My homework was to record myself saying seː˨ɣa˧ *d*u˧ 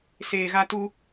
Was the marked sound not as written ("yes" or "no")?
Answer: yes